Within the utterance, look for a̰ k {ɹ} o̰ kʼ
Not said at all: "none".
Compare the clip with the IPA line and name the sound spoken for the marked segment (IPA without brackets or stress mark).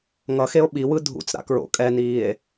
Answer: ɹ